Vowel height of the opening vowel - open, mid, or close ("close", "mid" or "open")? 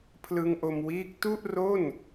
close